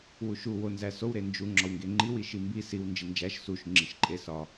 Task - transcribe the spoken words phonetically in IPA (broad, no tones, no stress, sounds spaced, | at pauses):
w u ʃ u w o n z æ s o w ɾ e n d͡ʒ u ŋ͡ǁ ɒ w ŋ ɡ e ŋ͡ǃ i w i ʃ i m b i s i w n d͡ʒ i n d͡ʒ æ ʃ s u ʃ ŋ͡ǁ i ʃ ǃʼ e s ɒ